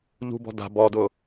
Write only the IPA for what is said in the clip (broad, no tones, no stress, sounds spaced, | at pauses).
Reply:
ʎ ṳ b ɔ̤ d a̤ b ɔ d ʊ